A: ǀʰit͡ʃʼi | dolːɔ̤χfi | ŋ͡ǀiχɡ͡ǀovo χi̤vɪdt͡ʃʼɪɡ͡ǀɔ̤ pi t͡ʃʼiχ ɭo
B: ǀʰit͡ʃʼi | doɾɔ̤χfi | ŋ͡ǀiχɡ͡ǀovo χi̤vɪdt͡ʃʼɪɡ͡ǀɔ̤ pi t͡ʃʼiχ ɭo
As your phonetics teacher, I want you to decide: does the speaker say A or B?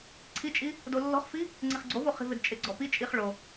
A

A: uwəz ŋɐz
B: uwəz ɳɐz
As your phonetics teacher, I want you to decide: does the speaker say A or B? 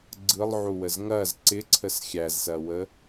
A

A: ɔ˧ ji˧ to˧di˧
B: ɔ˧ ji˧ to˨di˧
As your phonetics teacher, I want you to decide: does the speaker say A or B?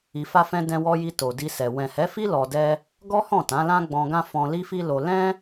B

